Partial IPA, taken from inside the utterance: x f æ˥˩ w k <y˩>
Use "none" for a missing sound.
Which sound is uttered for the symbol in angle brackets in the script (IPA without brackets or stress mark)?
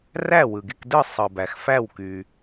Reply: y˩